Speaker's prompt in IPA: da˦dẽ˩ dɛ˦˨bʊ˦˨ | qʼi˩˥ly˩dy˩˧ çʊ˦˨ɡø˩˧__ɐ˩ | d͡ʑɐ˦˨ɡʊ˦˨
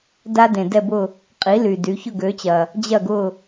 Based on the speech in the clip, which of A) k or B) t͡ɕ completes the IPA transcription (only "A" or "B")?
B